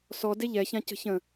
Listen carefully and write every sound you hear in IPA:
s ɔ d e ʎ ɛ ç ã c ə̤ ç ə̃

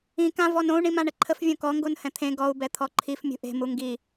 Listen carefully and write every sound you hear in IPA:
ĩ k ã v ɔ n õ u̯ ɳ ĩ m ã ɳ ə ǃʰ ə f vʲ õ k ɔ ŋ ɡ o n h ɛ̃ t̪ʰ ẽ ɡ ɔ u̯ b ɛ t̪ʰ ɔ ǃʰ i f mʲ ṳ ʔ e̤ m u ŋ ɡ i

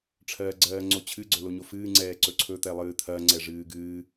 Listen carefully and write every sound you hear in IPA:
ʈ͡ʂʰ ɜː ɡ͡ǀ ɜː ŋ͡ǀ o t͡ɕʰ ɨ ɡ͡ǀ ɵ l o ɲ o f ɨː ŋ͡ǀ ɛː ǀ ɵ ǀʰ ɵ t̪ ɛ lˠ ɨː t̪ʰ ɐ ŋ͡ǀ ɛ ʐ ɨː ɡ ɨː

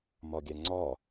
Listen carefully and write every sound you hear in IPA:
m ɒ ɡʲ æ ŋ͡ǀ ɒ

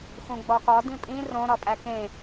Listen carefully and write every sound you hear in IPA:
x ũ ɡ͡b ɒ k ɒ d ĩ pʼ ĩ r õ ɾ ɒ pʼ æ k ẽ

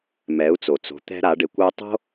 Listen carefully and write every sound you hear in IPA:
m ɛ˩˧ u̯ t͡s o˩ t͡s o̤˩˧ t̪ ɛ̤˧ ɾ a˩˧ ɖ e˩˧ kʷ o˧ tˤ o̤˥

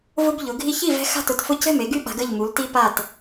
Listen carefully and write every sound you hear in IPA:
v ʊ˦ b ʎ ʊ˩˧ ɡʱ i˦ ç i˥˨ v ɛ̤˦ x a̤˥˨ t ʊ˥˨ t f ʊ˥˨ c ɛ̤˥˨ m e˩˧ ɡ y˦ ɓ a̤˩˧ ɡ ə˥˨ ʎ m u˩˧ l t i˦ p a˥˨ t

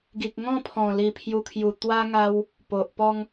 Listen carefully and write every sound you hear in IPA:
ɡ i˨ k̚ ŋ ɔ̃˥˧ pʰ ɔ̃˨˩ l i˨˩ pʰ j u˧ kʰ j u˨˩ t̪ w a˦ ŋ a˧ w | p o˨ ʔ p ɔ˧ ŋ

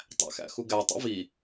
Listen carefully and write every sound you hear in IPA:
tˤ æ̰ x æ̰ x u ɡ æ tˤ ḛ v i

